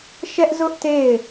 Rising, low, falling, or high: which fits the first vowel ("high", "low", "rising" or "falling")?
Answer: high